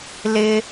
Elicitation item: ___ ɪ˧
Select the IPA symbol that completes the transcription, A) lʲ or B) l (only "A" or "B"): B